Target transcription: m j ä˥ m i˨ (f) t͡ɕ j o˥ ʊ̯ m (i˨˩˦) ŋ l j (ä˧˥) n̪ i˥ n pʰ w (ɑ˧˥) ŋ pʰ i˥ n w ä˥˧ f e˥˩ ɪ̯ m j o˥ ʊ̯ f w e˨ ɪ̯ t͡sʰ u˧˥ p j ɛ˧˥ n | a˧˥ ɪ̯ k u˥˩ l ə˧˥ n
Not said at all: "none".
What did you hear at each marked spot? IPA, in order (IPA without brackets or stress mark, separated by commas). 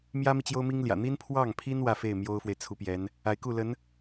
none, i˥, ä̰˨˩, ɑ˥˩